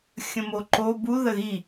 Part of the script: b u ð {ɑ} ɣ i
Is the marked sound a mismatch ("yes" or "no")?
yes